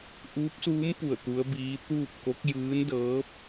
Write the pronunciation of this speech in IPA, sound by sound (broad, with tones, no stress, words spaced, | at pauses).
ʔuː˧˥p̚suː˧˥mpu˧˩ə̯ t̪u˧˥ə̯biː˧˥ t̪uː˥˨p̚ko˧˥k̚ jɯː˧˥ndɤː˧˥p̚